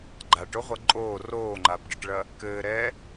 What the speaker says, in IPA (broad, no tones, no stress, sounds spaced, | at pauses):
ɡ͡ǃ a ʈ o ʁʷ ɐ ǃʼ oː r oː ŋ͡ǃ a b ɖ ɘ ʈ ɭ ɐ | k ɘː ɾ ɛː